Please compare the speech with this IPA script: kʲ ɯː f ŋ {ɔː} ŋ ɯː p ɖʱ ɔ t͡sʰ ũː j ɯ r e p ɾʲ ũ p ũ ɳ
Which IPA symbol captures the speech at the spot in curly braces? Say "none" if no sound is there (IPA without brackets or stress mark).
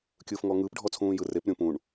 ɔː